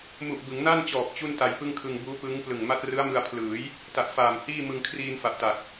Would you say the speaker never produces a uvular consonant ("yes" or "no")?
yes